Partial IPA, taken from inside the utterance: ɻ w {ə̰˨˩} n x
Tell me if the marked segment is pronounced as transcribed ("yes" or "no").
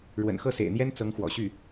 yes